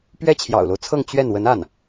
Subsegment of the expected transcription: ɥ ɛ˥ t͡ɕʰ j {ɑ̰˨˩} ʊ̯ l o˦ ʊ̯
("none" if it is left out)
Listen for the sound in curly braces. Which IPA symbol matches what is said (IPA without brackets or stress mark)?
ɑ̰˨˩